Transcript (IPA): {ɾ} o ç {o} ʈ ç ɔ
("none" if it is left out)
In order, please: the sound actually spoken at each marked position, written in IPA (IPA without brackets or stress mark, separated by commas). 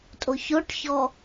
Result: tʼ, o